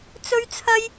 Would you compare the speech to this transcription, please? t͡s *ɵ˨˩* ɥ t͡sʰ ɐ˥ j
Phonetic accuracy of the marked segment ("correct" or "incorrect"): incorrect